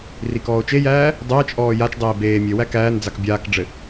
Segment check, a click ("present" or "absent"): absent